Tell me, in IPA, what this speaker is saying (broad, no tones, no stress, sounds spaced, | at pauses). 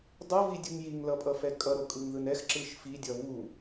dˤ o v i dʲ ɯ ŋ j i ŋ l ʌ pʼ ʌ f ɛ kʼ ʌ ɾ o kʼ ɯ ŋ ð ɯ n ɛ x ǁ ɯ ʃ f i dʲ ʌ β u